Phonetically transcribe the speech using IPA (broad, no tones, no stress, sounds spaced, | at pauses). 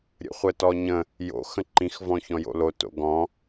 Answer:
ɾʲ ə̰ χʷ ə t ɔ ɲ ə̃ | j o̰ x ə̃ ǃ ĩ x v ɔ̃ ç ɔ̃ j o̰ l o t o̰ ɡ ɔ̃